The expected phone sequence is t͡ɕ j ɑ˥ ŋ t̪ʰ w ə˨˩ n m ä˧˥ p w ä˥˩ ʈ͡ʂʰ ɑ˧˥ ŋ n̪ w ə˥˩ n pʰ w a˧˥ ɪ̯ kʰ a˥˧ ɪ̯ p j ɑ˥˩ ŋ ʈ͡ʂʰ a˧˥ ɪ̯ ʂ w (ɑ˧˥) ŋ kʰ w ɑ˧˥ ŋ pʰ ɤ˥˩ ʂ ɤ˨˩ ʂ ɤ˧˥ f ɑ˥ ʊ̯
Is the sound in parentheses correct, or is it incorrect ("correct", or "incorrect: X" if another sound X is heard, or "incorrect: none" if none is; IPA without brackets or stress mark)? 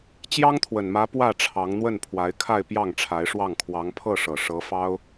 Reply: incorrect: ɑ˥˩